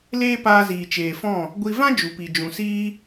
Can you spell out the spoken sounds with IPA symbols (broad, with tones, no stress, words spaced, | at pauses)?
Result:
leː˦paː˧ ziː˨t͡ʃeː˨fɔ̃˦˨ | ɡʷi˧ vã˦ d͡ʒu˨pi˨ d͡ʒũ˨siː˦